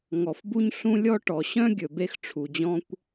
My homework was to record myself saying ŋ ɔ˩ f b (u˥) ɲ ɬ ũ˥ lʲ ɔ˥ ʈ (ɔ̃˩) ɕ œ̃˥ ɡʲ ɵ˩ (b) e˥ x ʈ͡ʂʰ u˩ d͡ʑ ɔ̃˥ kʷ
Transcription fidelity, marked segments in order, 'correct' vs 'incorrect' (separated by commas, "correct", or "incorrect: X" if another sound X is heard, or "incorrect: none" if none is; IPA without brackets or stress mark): correct, incorrect: ɔ˩, correct